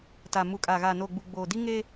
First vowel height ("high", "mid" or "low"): low